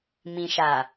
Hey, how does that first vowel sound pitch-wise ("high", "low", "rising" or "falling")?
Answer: low